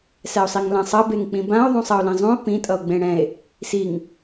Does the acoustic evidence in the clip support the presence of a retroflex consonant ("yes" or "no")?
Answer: yes